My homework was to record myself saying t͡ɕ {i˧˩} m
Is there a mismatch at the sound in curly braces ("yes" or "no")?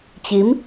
yes